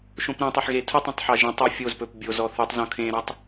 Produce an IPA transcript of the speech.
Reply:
ʃõpɾõtˤɑħ ɣetʰutˤõtˤ ħɑʒẽtˤø fʲoz pɵpbʲozɔ θutˤzõ kʰẽɾɔtˤ

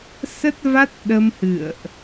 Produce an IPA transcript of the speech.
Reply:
sə˦˥t̚va˦˥t̚ ɗə˧mhɨ̰˧˨ə̯ʔ

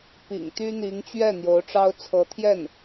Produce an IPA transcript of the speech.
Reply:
pḭ˨˩ŋ t̪y˥n̪i˧˥ŋt͡ɕɥɛ˥˩ n̪jo˧˥ʊ̯ʈ͡ʂɑ˥ʊ̯ t͡sʰɤ˧˥t̪ʰjɛ˥˩n

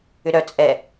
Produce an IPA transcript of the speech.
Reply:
ʏɾœ t͡sʼɛ

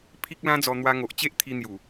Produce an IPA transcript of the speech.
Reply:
pʰi˦k̚lã˦d͡zɔ˧ n̪wa˧ŋo˨ʔt͡ɕe˦ʔ t̪ʰi˧n̪ju˨˩

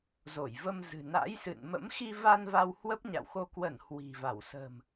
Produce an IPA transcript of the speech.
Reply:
zo˧˩jvə˧m zɨ̤˨˩na̰˧˥jsɨ̰˧˨n mə̰˧˥mxi˧va˧n va˧w hwə˦˥p̚ɲa̰˧˨wxo˧ kwə˧˩n hwi̤˨˩va˧˩w sə̤˨˩m

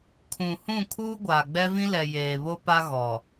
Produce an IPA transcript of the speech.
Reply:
kʰũ˨ hũ˦˨kʰuː˦ ɡʷaː˨ ɡ͡bɛ˦vĩ˦lɛ˨ jeː˨βo˦pa˦ɣɔ˨

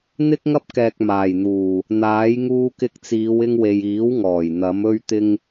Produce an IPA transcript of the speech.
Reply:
n̪ɪ˥k̚ŋɐ˥p̚kɛː˨k̚ maː˨˩jn̪uː˨˩ | n̪aː˨˥j ŋuː˧kɪ˧k̚t͡siː˨˧w ɪ˧ŋwe˨jiː˨˥wŋɔː˨˩j n̪ɐ˨˥mɵ˥ɥt̪ɪ˥ŋ

